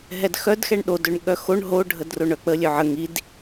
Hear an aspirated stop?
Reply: no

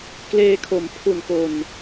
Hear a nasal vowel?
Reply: no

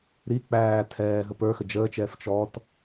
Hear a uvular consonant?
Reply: no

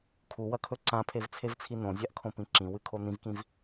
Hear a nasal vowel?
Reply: yes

